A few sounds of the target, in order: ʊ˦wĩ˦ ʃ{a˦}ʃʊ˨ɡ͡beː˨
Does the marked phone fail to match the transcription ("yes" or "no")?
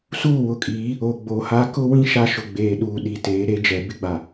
no